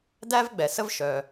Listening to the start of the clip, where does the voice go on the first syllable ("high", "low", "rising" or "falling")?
high